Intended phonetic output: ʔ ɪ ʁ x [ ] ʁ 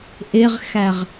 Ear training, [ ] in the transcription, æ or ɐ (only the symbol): æ